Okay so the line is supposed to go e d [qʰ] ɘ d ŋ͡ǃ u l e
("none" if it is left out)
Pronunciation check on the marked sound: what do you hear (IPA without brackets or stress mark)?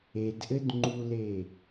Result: ʔ